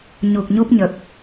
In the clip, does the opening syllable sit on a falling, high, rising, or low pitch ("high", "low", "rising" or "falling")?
low